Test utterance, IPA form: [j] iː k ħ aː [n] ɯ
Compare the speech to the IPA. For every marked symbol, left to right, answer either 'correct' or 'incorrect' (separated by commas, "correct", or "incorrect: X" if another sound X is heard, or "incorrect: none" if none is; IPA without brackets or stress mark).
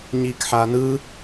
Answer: incorrect: ɲ, correct